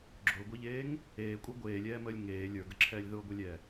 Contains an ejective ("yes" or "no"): yes